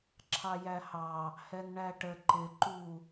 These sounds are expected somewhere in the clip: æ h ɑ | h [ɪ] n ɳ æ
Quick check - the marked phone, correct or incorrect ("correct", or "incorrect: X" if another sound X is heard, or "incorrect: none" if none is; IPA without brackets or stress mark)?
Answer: incorrect: ɛ